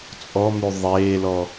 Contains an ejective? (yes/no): yes